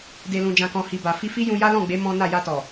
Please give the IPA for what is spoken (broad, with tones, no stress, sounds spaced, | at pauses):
d e˨ l ũ˨ d͡ʒ ã˨ k ɔ̃˨ h i˨ b a˨ f i˧ f i˦ j ũ˧ j a˦ l ɔ̃˦˨ ɡ͡b e˨˦ m ɔ̃˦ n a˦˨ j a˧ t ɔ˨